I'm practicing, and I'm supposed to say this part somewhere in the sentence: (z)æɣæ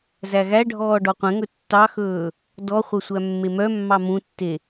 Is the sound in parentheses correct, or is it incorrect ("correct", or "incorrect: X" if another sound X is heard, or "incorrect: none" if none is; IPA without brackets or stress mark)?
correct